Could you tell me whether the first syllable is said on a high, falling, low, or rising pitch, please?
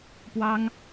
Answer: high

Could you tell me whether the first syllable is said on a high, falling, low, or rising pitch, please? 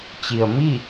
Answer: low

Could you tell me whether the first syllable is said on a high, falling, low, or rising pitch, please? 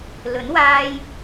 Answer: rising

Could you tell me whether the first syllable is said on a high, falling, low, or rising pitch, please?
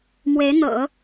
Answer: rising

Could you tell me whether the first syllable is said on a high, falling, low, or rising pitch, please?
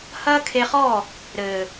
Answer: high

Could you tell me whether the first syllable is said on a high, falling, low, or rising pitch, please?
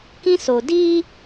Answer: high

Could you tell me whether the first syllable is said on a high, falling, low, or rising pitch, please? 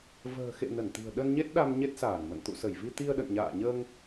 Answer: low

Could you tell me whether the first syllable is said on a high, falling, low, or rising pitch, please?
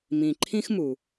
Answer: low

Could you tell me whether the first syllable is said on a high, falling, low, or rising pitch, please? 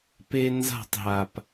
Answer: high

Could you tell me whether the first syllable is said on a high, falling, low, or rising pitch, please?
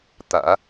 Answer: low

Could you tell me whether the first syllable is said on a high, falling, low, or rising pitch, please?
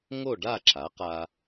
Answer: falling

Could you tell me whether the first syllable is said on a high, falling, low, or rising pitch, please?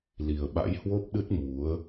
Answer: low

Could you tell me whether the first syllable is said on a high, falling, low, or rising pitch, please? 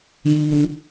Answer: low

